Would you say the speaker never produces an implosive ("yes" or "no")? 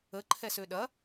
no